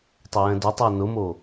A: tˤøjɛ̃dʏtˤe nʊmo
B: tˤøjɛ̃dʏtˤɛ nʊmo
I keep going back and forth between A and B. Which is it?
B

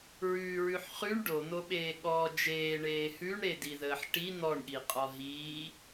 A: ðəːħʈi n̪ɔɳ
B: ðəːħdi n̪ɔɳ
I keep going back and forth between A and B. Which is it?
A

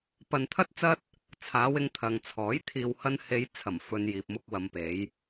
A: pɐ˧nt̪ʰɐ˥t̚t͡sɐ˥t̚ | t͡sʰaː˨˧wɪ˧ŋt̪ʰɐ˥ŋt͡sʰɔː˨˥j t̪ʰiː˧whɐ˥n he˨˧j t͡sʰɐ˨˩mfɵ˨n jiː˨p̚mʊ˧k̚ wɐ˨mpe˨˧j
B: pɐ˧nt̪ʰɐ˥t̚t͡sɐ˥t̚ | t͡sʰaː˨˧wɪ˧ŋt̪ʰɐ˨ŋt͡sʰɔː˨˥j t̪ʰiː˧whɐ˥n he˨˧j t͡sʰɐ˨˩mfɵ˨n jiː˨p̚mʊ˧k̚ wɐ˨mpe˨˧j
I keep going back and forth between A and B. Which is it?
B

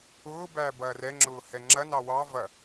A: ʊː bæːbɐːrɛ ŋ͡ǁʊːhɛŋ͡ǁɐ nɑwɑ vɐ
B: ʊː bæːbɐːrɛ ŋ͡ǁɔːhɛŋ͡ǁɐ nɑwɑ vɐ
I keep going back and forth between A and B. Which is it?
A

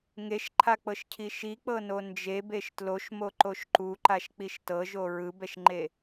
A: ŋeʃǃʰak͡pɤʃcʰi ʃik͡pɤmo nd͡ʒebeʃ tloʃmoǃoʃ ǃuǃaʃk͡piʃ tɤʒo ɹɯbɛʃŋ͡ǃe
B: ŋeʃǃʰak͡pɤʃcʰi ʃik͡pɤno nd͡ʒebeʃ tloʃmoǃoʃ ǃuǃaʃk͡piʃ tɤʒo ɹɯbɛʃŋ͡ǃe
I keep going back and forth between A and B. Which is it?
B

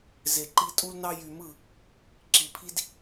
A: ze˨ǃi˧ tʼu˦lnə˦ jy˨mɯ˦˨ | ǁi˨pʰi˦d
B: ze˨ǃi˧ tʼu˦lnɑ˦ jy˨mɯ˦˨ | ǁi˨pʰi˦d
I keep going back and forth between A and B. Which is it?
B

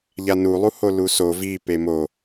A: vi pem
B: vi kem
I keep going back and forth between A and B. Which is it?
A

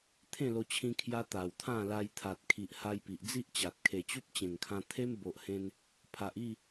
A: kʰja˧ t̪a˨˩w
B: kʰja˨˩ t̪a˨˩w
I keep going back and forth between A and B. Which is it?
A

